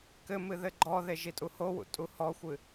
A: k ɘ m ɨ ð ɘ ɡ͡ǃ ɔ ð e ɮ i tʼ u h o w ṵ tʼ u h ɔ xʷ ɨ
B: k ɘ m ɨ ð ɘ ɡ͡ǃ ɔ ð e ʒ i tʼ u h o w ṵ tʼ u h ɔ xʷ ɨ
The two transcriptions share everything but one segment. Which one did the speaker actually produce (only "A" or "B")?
B